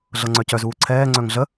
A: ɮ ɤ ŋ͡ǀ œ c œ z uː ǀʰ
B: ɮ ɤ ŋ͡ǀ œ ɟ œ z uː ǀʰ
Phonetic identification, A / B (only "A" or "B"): A